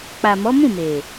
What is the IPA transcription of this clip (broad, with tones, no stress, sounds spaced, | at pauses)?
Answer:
k͡p a˨ m ɔ˨˦ m ũ˦˨ m e˨